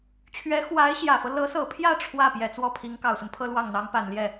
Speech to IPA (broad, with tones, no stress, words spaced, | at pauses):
t͡ɕʰɥɛ˧˥ xwa˧˥ɪ̯ɕjä˨˩fɤ˦ lɤ˧˥sɤ˨˩pʰjä˥˧ ʈ͡ʂʰwä˥˩ pjɛ˨˩t͡swɔ˥˩pʰi˧˥ŋ kɑ˨˩ʊ̯sə˦npʰɤ˥lwɑ˥˩ŋ n̪ɑ˧˥ŋpa˨˩nljɛ˥˩